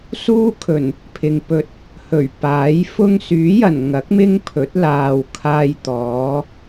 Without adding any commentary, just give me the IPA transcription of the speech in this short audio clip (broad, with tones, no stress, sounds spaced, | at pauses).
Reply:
s uː˥ kʰ ɵ˨˩ n | pʰ ɪ˨ ŋ p ɵ˧ t̚ | h ɵ˨˩ ɥ p aː˨˥ j f ʊ˥ ŋ s yː˨˥ j ɐ˨˩ n ŋ ɐ˨˥ k̚ m ɪ˥ ŋ pʰ ɵ˨˥ t̚ l aː˨ w kʰ aː˧ j t̪ ɔː˨˥